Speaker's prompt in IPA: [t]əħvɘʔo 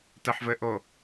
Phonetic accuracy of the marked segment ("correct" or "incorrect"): correct